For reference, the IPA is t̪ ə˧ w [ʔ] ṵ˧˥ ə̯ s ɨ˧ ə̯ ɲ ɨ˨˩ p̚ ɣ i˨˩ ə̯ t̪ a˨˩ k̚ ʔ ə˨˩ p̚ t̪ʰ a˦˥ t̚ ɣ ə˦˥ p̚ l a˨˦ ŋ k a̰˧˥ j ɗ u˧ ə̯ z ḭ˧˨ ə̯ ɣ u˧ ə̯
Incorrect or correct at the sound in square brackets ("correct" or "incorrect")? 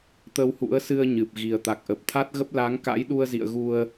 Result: incorrect